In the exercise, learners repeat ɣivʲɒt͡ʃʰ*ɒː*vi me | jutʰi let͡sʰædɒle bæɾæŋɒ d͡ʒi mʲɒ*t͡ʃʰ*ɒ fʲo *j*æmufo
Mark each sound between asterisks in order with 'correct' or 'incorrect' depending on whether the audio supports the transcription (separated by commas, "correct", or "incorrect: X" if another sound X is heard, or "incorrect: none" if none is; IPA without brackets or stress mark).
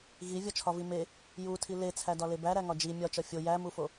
incorrect: ɒ, incorrect: t͡ʃ, correct